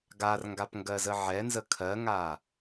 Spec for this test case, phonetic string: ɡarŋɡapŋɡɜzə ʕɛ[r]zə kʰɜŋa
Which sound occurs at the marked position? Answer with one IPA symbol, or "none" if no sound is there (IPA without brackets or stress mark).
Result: n